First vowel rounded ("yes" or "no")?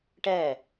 no